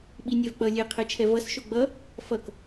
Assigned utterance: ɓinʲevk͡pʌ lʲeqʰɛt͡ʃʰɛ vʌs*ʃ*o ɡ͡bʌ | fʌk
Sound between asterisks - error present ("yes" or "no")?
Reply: no